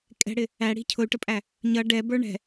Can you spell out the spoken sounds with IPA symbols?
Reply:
kʼ ɛ̤ ɽ ɪ | æ ɽ i̤ cʰ ʊ y̯ ʈ ə pʼ æ | ɲ ʌ ɖ ɛ b ə˞ ɳ ɛ̤

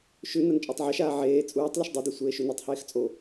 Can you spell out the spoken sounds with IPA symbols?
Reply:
ʃ ʉ n ɐ n t͡ʃʼ o tˤ ʕ ɐ ʃ aː ʕ eː t͡sʼ uː tˤ l ɵ ʃ dˤ e d e sʷ eː ʃ u n ʉ tˤ h eː x t͡sʼ o

